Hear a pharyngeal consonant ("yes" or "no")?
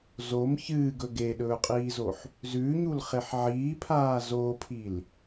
yes